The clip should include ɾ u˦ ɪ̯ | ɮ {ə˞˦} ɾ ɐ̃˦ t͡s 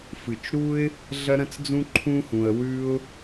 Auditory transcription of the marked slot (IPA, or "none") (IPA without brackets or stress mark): ɐ˦